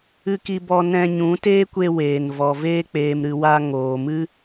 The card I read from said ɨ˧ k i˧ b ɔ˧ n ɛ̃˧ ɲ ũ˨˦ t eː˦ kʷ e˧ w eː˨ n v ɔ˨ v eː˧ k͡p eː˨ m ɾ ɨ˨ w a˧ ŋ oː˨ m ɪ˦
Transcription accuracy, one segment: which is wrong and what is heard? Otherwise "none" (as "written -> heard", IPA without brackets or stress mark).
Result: ɪ˦ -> ɨ˦